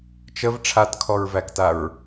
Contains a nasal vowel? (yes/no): no